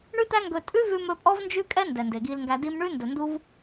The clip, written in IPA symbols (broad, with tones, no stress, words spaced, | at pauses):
ɳʉ˦t̪æ˦ŋɡɵ˧ tʼʉ˦ vʉ˧mɵ˧ pʼɔ˦vnd͡ʒʉ˦kʼɛ˦ ndɛ˨nde˨ɡi˧lŋɡæ˧ di˧m ɳʉ˦ ndɵ˨ndu˧v